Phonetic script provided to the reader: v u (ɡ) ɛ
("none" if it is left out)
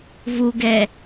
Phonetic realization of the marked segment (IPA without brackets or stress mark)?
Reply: ɡ